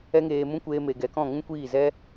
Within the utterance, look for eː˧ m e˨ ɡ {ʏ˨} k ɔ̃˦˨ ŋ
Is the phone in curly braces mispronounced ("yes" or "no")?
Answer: yes